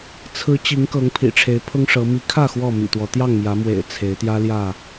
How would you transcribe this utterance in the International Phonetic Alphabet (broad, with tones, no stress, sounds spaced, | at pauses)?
t͡sʰ ɹ̩˨˦ t͡ɕ i˨˦ ŋ k ɤ˨˦ ŋ pʰ ḭ˨˩ ʈ͡ʂʰ e˨˦ ɪ̯ pʰ ʊ˦ ŋ ʂ ɤ˨˦ m i˨˦ kʰ ä˥˨ x w ɔ˥˨ m ḭ˨˩ t̪ w ɔ˨˦ t̪ j ɑ˥˨ ŋ m j ä˨˦ m w ḛ˨˩ ɪ̯ t͡sʰ e˨˦ ɪ̯ t̪ j ä˦ l j ä˥˨